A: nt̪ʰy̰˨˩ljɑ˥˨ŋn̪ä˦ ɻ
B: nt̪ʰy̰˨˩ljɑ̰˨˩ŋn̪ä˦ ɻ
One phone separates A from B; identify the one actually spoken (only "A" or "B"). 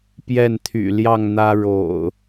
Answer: A